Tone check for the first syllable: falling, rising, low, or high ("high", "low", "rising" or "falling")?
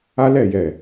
high